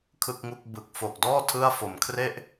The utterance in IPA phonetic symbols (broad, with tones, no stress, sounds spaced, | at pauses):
kʰ ɯ˥˩ k̚ ŋ u˥˩ k̚ b ɯ˨˩ k̚ f o˨˩ k̚ d ɔː˥˩ tʰ ɯ˥˩ a̯ f o˩˦ m kʰ r e˥˩ ʔ